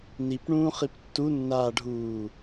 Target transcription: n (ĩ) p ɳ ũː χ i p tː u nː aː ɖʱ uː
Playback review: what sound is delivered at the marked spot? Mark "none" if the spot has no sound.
i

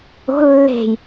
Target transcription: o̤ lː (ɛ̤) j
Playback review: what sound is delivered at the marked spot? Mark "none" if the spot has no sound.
e̤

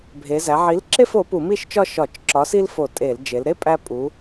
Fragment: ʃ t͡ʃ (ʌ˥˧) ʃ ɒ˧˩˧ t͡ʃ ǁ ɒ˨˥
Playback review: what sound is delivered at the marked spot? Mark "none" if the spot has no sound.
ɒ˥˧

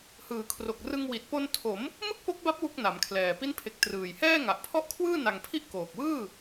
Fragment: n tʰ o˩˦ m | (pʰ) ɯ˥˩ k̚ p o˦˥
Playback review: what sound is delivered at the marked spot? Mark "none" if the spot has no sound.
m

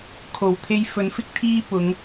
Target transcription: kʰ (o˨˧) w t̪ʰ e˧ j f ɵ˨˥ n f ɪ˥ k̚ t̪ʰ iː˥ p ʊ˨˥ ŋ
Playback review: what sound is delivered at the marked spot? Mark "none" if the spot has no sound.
o˨˩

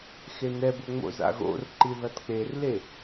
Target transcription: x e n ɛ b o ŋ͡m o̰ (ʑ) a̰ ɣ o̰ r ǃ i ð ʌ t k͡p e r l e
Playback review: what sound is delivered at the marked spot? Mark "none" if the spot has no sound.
z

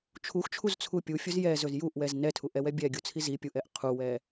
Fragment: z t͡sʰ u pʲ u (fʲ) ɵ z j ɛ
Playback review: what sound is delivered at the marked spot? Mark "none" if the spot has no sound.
fʲ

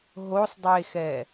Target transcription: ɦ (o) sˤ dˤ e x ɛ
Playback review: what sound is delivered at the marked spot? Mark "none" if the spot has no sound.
o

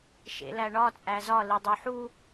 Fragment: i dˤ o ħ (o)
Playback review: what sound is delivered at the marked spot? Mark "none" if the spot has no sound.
u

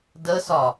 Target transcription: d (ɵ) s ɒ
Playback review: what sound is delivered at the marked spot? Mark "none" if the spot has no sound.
ə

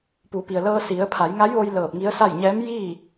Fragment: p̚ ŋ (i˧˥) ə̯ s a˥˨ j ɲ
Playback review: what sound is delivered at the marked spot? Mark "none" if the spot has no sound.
i˧˥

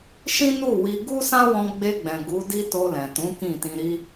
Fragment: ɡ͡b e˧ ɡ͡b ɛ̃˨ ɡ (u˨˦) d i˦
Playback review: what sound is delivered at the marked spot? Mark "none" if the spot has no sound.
u˨˦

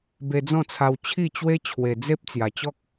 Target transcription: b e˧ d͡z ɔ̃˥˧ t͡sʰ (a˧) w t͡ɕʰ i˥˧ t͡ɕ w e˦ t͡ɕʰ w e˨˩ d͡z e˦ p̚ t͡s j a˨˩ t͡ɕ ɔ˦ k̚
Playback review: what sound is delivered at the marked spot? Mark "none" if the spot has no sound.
a˧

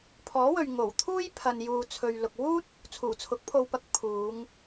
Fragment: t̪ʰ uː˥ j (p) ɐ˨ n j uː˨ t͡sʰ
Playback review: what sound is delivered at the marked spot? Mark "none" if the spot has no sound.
pʰ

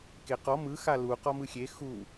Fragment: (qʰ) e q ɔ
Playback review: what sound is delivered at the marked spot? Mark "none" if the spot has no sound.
k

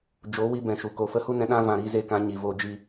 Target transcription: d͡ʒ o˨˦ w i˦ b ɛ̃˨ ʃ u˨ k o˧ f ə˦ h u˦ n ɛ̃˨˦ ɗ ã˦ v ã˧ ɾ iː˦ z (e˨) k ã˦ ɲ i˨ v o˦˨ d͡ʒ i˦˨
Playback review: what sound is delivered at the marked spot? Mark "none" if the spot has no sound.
e˦˨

